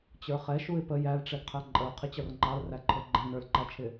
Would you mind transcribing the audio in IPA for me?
t͡ɕ ə˞ χ ɛ ʃ u ɪ̯ p ə j æ l ʈ͡ʂ ɛ ɡ qʰ æ ǃʼ ə ʊ̯ qʰ ɪ t͡ɕ ʌ r ŋ͡ǃ ɑ l r æ ǃʰ ə˞ ɡ͡ǃ ɛ̃ n ə˞ l ǃ æ t͡ʃʰ ɪ

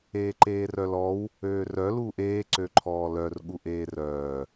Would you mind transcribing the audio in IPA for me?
eː ǃ eː r œ l ɔ w | øː r œ l uː ʔ eː ǀ ø ǃʰ ɔː l œ r ɠ u ʔ eː r œː

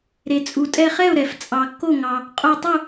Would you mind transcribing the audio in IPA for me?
ɾ e˩ t͡sʼ u˩ tʼ ɛ˧˩ χ ɛ˥˩ ʊ̯ ɾ ɛ˩ f t͡sʼ ɑ˩ kː o˥˩ ŋ ɑ˩ | qʼ o˧˩ tˤ u˥˩

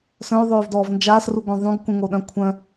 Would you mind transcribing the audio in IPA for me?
s œ̃ y̯ ðˤ øː v d ɔː v n d͡ʒ aː s r u ɡʷ œ̃ ðˤ ũ ɡ k ũ ŋ o ɗ œ̃ kʷʰ œ̃

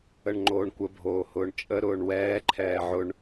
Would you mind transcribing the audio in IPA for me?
ə ɳ ŋ͡ǃ oː ɳ kʷ ə bʱ oː h ʊː ɳ t͡ʃʼ ə ɾ ʊː ɳ w ɛː ǃʰ ɛː ʕ ʊ ɳ

